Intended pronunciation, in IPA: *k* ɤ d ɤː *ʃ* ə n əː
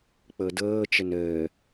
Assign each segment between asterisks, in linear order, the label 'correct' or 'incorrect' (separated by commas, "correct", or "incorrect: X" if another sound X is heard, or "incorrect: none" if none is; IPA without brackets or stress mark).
incorrect: k͡p, incorrect: t͡ʃ